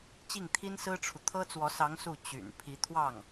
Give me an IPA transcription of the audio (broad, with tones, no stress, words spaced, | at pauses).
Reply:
t͡ɕi˥˩ŋt̪ʰi˥nsɹ̩˥ʈ͡ʂʰu˨ t̪ʰɤ˥t͡swɔ˧˥sɑ˧˥ŋ su˥˩ t͡ɕy̰˨˩n pʰi˧˥t̪ʰwɑ˥˩ŋ